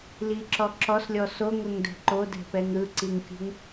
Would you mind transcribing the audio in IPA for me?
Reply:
l i ǁ ɔ ǁ ɔ s lʲ ɔ s o ŋ ɤ ŋ d ɛ̤ ǃ o d ɛ̤ p ɛ ŋ ɾ ɯ ǀ i ŋ kʲ ṳ ŋ

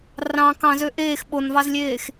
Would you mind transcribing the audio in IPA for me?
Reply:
r ɑ̃ k ɑ̃ z ø ʔ eː x ɓ o n v ɑ z lʲ eː x

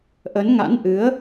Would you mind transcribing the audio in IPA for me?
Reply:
ʔ ə˨˦ n ŋ a̰˧˥ n ʔ ɨ˨˦ ə̯

